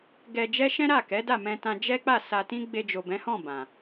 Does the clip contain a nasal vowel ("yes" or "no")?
yes